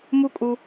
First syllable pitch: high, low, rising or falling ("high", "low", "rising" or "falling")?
high